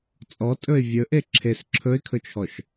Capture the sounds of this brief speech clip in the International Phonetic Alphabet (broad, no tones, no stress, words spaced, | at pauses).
t͡sʼɔtʼɵɪ̯ vʲɵ ʔeǁʰes ǁʰɵɪ̯kʰɵt͡ʃʰɔʃ